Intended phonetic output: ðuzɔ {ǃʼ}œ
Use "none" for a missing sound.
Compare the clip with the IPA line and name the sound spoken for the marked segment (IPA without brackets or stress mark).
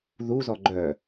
ɡ͡ǃ